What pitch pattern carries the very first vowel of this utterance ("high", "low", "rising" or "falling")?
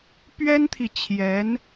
high